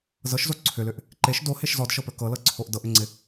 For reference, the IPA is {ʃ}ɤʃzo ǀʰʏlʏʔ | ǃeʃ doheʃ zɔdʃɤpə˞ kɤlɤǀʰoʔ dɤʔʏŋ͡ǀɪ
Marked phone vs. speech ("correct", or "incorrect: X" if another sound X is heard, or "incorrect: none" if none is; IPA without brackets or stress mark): incorrect: z